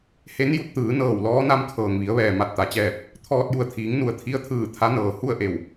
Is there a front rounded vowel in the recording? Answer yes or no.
no